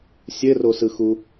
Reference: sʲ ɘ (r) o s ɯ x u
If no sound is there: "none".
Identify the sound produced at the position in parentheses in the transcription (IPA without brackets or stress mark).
r